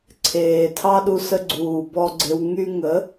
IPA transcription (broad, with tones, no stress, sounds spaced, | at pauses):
ǀʰ eː˨ tʰ ɑ˦ ɗ u˧ s ə˧ ɡ͡ǀ uː˨ b ɔ˧ ɡ͡ǀ e˧ w ŋ y˧ ŋ ə˨˦